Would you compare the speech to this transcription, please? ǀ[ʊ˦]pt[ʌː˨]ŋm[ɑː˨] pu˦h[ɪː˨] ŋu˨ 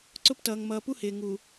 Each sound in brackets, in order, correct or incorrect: correct, correct, incorrect, correct

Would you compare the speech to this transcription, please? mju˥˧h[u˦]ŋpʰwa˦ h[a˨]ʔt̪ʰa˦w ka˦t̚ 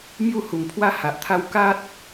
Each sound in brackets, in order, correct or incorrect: incorrect, correct

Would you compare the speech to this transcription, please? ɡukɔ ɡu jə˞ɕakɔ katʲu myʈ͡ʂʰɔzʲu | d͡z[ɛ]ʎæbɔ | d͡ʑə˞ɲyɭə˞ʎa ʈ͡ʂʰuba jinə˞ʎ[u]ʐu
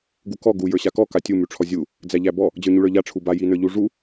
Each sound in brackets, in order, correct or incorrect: incorrect, correct

